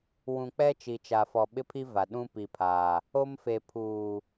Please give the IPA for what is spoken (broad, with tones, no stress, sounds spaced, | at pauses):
w ũ˨ k͡p ɛ˦ t͡ʃ i˨ t͡ʃ a˨ f ɔ˨ ɓ ɪ˦ pʰ i˦ v a˨ ɗ ũ˦ p i˨ pʰ aː˨ | o˦ m f e˨ pʰ uː˨